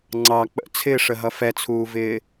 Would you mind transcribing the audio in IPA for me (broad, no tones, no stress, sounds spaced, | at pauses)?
ŋ͡ǀ ɑ k͡p ə̰ t͡sʰ ɪː ʂ ə ɦ ʌ f ɛ t͡sʰ uː v ɪː